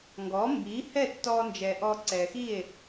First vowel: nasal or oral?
oral